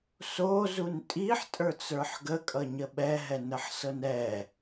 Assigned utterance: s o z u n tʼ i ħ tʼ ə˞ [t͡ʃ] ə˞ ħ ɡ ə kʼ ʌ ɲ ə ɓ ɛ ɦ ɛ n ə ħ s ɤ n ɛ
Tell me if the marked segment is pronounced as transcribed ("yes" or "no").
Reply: no